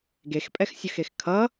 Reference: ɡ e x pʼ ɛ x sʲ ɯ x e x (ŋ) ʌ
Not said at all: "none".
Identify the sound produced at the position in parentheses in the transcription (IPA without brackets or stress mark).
kʰ